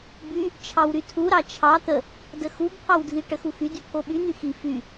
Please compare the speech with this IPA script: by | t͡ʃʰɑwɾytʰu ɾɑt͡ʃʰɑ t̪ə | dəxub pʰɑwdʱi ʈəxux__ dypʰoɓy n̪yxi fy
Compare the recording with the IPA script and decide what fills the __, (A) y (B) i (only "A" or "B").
A